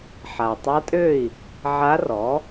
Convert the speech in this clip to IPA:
ħa˩ tˤa˧˥tʼø˥˩i̯ | ʕa˧˥rɔ˩˥

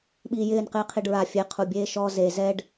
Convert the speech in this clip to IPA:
ɓiːjɪːn qɪːqʰiɖɹa fʲeqʰubʲeː ʃɔ ze zɛɖ

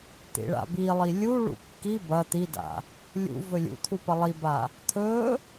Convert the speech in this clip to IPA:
t̪ḭɭa̰bilˠi lʲuɭṵ kːi bɐ t̪ida̰ | lʲṵ vɵlʲṵt̪ʰu pɐlˠiba | t̪ʰɵ

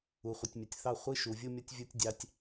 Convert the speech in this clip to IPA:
u˨χʷɪ˨tʲmʲʌ˨tʲθɑ˦˨ χʷi˦ ʃu˨vʲu˦ mʲʌ˦tʲvʲu˦tʲ dʲɑ˦tʲ

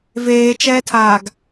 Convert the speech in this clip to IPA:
veːt͡ʃɛːtʰaːɡ

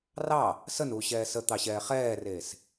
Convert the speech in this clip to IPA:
rɑ | sənuːɕɛː sət̪ɑɕɛː χɛːreːs

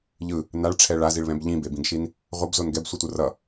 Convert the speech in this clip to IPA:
ʎɯ | naɭʈ͡ʂʰɛ ɭaziɭβɛ̃b ʎĩbebĩɡʃin | ʁʷʌbzon ɡɛbsʷitʷɯ rʌ

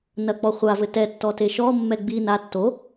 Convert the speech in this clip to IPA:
nɐk͡pɔ χʷavɘ tɛtːɔte ʃɔmːɛ ɡ͡bi na tːo

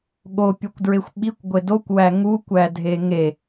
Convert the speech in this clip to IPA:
ɠopʲokʷdɹexʷ ɓikʷɡʷe dokʷwæ ŋukʷædʱe ŋe

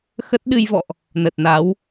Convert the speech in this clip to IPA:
xə˦˥t̚ ɗɨ˧jvɔ̰˧˨ʔ | nə˨˩t̚na˨˦w

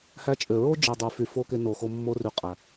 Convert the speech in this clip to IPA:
hæ˧t͡ʃʼø˨ ɹo˦d͡ʒi˨ dˤy˨fy˨fo˧ ke˧no˨xo˧ mːo˧ry˨qʼæ˨

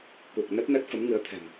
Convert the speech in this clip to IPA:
ku˨˩k̚nə˦˥t̚nə˦˥t̚ fə˨˦mŋɨ˨˦ə̯t̪ʰɛ̤˨˩m

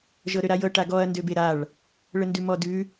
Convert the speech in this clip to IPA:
ʒɤɾøɾajɤ ʈaɡɔɐ̯ ndøbeɾaɭ | ɭəndʉmɔdʉ

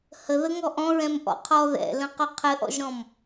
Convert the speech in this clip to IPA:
hə ðəŋɔʔɔ̃ ɹɛ̃mʔɔ̰qʰɔ ðɛ̰lə̃qʊ qʰɘʔɔ̰ʒɾɔ̃m

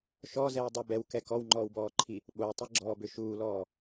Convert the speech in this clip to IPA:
ʃɔzɛwdˤe bɛwkɛ kɔwŋ͡ǃɔːwbɔːǃʰi | ɓowtˤiɡ͡ǁɔːbʏ ʃuːlɔː

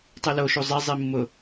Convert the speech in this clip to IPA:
tˤiloʃu zˤezˤi mːʊ

